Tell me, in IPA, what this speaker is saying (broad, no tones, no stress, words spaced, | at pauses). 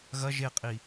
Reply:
ɣɐ ʒeqʼi